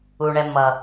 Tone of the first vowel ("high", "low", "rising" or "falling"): low